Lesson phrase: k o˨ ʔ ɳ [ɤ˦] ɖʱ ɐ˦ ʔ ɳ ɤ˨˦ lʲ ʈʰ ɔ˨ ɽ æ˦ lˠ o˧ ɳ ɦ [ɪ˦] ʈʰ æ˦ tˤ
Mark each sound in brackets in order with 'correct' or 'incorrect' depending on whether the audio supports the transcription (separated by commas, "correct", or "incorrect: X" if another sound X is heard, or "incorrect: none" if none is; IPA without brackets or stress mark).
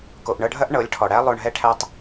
incorrect: ɤ˧, incorrect: ɛ˦